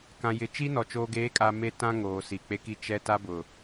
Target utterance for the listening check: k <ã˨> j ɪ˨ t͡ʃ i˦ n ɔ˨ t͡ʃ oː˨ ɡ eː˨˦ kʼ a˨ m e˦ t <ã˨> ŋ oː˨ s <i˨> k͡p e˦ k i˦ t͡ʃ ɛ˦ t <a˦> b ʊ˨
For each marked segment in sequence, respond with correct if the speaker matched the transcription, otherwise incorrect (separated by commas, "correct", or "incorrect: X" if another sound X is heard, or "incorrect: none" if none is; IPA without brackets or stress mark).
correct, incorrect: ã˦, correct, correct